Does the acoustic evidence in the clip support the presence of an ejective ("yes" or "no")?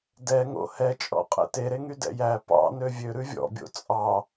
yes